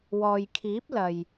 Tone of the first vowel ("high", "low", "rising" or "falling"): low